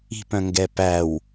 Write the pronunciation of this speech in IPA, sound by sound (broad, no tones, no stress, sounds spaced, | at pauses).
i̤ p œ̃ ŋ ɡ ɛ p æ w